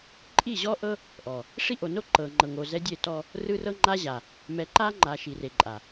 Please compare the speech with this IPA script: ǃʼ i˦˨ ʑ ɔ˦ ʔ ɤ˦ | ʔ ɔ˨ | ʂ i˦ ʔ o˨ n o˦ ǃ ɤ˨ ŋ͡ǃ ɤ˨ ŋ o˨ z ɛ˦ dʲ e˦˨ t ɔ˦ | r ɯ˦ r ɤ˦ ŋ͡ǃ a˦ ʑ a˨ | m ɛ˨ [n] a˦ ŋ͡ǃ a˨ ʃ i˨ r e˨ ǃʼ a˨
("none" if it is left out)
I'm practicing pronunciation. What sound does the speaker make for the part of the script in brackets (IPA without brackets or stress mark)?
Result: ǃ